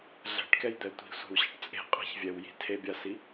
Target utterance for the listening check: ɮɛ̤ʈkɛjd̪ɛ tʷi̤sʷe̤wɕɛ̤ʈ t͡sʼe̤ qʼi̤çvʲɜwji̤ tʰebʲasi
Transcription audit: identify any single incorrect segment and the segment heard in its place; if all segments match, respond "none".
ɜ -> ɛ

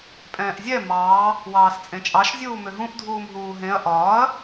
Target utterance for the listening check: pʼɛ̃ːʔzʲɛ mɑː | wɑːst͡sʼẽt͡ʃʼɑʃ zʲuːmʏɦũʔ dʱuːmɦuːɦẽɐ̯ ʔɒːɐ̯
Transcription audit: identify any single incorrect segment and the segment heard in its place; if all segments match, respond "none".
none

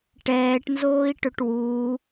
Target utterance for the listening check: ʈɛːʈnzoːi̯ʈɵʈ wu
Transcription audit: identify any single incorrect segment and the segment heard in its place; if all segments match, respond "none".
none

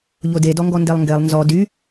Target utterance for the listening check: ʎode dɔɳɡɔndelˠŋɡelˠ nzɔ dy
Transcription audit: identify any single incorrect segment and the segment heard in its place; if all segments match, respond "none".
ɳ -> ŋ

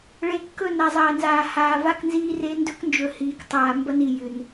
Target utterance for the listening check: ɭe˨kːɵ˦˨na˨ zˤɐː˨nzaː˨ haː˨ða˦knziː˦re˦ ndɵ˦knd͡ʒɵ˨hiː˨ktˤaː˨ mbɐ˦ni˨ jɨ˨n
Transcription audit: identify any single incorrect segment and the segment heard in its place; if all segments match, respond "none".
ð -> v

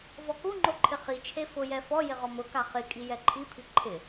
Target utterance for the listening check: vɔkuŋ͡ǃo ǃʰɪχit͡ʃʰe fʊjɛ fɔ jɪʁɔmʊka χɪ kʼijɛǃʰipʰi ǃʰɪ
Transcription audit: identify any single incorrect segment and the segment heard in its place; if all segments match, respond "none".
none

